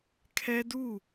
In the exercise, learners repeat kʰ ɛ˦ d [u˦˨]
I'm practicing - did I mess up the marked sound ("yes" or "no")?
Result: no